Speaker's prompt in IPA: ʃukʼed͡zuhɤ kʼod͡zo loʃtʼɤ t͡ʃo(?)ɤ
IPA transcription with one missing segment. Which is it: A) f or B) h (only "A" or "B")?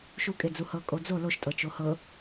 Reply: B